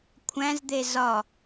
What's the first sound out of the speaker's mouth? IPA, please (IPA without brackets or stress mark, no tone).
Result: kʷʰ